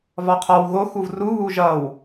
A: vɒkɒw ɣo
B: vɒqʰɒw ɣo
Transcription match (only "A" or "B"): B